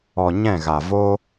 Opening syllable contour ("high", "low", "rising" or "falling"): low